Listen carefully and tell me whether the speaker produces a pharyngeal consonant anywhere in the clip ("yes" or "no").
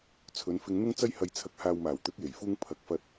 no